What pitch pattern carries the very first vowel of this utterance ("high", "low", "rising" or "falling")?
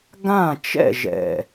falling